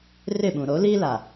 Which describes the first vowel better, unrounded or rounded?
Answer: unrounded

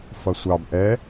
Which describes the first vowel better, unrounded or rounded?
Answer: unrounded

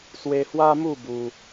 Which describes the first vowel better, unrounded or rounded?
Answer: unrounded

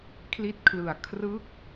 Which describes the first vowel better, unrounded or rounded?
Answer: unrounded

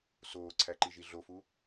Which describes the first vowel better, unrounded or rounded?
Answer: rounded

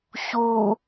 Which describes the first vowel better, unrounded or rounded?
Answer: rounded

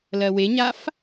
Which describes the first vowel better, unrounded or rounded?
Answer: unrounded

